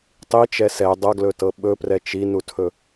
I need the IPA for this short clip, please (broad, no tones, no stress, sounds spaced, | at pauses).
tˤ i t͡ʃ ɛ s ɛ dˤ ʌ ɡ l ɵ t ɤ ɓ ɵ p r ɛ t͡ʃ i n u tʰ ɵ